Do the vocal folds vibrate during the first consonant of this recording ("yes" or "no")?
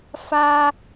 no